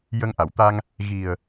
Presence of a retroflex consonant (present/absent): absent